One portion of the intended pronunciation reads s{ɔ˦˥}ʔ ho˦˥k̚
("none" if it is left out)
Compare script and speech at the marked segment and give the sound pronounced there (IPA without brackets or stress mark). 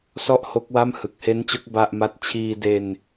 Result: ɔ˦˥